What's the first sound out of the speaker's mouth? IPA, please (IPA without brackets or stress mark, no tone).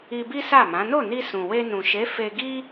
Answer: i